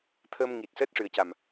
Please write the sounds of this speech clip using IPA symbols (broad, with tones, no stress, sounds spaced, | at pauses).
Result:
t̪ʰ ə˧ m ŋ i˨˩ t̚ s əː˦˥ t̚ ʂ ɨ˨˩ ə̯ c a˨˩ m